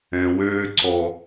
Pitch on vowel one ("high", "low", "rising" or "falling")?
low